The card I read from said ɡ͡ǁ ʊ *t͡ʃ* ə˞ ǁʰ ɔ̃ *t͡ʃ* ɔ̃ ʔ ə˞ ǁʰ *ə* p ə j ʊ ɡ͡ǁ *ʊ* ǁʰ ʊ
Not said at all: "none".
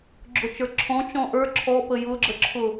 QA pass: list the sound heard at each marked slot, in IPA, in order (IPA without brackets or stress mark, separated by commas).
t͡ʃ, t͡ʃ, ɔ, ə